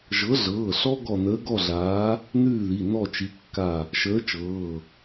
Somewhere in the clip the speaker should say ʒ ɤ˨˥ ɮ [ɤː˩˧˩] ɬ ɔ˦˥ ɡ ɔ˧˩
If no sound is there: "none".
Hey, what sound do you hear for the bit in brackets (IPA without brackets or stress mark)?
ɤː˩˧˩